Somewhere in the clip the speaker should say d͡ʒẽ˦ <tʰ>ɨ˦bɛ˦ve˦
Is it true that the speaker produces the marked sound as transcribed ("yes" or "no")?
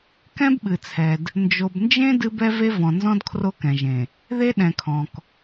no